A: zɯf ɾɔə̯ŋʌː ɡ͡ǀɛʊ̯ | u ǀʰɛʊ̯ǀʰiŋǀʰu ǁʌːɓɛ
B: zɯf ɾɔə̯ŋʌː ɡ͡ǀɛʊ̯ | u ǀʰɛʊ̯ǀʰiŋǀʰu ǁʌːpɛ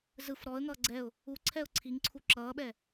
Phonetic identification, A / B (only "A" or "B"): A